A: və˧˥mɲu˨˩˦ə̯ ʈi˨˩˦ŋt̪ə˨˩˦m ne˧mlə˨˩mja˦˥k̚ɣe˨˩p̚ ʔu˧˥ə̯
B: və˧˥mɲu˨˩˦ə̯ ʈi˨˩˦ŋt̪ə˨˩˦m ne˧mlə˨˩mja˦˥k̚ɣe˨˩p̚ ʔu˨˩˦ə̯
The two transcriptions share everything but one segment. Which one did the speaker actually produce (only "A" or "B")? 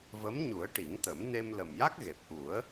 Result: B